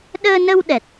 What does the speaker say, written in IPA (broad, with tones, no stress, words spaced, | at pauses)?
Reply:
ɗəː˧nə˧wɗɛ˨˩t̚